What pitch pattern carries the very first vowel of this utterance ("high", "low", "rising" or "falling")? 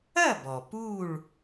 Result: falling